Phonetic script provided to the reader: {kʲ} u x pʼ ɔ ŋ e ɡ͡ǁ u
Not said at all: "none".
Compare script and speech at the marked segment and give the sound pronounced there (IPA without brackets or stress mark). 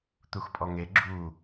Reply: t̪